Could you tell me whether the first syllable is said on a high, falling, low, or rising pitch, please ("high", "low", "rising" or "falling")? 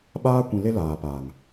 high